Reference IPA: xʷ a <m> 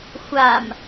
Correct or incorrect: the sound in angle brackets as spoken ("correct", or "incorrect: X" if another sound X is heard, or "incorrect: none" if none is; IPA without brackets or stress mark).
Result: correct